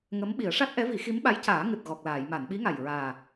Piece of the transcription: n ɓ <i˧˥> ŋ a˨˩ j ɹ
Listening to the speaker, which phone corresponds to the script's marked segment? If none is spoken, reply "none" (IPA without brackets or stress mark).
i˧˥